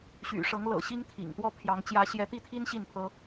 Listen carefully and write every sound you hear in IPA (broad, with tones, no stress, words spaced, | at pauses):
ɕy̰˨˩ʂɤ˨˦ŋlɤ̰˨˩ ɕi˦ŋt̪ʰḭ˨˩ŋt̪wɔ˥˨pʰjɑ˨˦ŋ t͡ɕjä˨˦ɕjɛ˨˦t̪i˥˨t̪ʰi˦n ɕi˥˨npʰɤ˦